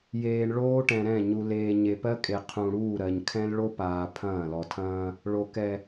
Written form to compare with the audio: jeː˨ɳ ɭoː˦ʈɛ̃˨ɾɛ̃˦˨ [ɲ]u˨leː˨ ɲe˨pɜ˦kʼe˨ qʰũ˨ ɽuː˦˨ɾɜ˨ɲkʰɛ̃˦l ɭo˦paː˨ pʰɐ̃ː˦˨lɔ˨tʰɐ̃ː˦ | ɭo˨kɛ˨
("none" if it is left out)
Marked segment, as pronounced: ɲ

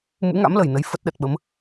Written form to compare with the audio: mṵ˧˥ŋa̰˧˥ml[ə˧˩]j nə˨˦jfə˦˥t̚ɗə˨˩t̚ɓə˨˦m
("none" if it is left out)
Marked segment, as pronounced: ə˧˩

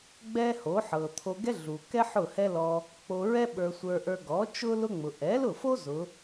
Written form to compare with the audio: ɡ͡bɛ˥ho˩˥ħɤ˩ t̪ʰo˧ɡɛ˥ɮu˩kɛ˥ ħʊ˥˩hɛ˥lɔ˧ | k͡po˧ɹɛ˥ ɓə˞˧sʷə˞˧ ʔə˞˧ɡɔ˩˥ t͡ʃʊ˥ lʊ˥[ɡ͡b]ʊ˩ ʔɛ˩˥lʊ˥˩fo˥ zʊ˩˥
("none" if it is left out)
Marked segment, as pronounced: ŋ͡m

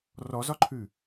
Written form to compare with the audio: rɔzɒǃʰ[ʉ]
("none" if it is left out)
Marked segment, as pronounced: ʉ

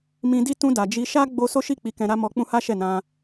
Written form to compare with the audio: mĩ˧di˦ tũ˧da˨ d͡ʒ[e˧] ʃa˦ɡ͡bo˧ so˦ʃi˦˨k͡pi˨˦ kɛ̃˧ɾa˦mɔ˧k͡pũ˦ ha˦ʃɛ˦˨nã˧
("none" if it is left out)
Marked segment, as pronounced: i˧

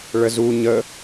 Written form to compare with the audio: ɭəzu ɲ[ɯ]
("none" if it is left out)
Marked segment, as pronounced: ə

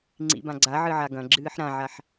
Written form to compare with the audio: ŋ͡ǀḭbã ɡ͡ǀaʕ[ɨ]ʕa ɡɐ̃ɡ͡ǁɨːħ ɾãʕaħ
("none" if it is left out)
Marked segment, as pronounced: ɨ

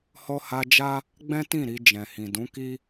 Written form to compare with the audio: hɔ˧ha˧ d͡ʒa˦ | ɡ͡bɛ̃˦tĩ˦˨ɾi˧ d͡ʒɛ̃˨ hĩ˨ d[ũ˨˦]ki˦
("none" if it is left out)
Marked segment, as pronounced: ũ˨˦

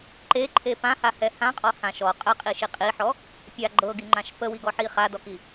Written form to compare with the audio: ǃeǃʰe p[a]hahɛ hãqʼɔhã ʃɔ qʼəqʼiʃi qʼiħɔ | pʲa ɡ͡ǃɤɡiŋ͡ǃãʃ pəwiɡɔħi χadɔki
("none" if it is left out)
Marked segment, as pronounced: ã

